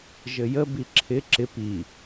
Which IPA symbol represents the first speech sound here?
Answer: ʒ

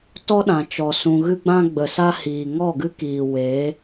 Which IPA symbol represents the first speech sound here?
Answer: t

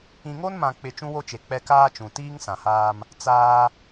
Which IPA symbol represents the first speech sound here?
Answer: ĩ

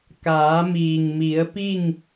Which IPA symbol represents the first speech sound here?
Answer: k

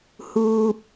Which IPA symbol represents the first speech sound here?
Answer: h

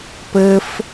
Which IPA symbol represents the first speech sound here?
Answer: p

